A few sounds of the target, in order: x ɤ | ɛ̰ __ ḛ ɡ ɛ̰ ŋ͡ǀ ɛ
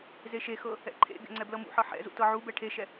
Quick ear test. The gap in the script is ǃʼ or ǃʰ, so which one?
ǃʰ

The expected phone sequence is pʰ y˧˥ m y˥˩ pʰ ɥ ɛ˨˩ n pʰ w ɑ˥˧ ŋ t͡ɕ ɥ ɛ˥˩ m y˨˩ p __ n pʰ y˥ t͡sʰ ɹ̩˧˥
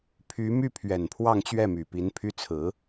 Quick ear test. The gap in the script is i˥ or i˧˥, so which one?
i˧˥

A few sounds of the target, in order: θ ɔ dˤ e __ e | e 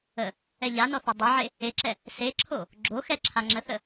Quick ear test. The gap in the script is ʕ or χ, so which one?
ʕ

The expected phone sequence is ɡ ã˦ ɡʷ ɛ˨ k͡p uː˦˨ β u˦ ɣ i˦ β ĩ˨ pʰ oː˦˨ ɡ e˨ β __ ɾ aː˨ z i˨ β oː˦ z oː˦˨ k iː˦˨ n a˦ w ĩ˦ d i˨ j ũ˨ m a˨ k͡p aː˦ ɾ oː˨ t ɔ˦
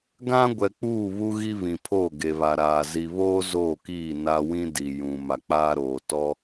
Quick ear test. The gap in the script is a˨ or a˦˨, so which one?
a˨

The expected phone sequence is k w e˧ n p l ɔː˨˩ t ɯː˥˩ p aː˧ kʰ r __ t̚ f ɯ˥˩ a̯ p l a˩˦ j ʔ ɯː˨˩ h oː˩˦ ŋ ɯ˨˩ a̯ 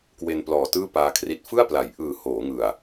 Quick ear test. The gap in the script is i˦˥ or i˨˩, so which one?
i˦˥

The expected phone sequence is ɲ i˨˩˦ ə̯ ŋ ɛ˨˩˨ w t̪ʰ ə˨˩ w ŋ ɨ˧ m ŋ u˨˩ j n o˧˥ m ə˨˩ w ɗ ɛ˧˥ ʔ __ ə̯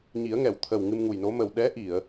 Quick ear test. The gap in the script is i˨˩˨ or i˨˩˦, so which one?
i˨˩˨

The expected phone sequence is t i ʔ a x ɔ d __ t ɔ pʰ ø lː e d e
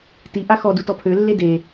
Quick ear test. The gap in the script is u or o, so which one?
u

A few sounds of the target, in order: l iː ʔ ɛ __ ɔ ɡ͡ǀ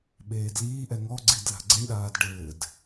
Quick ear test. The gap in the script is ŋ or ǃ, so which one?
ŋ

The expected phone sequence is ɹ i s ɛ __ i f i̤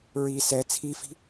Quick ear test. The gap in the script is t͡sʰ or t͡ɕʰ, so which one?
t͡sʰ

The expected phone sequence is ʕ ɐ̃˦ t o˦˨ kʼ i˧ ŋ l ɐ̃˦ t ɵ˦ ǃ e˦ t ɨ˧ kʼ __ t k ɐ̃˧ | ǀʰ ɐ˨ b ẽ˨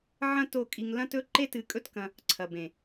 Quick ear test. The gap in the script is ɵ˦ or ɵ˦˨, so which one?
ɵ˦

